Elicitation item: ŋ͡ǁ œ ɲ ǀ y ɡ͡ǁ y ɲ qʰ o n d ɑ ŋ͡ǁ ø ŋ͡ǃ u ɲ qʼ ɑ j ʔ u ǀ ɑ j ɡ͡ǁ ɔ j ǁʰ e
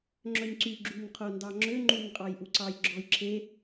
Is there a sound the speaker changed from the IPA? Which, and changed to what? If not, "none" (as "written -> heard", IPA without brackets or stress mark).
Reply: none